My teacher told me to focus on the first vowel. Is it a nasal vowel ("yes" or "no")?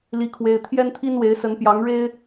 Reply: no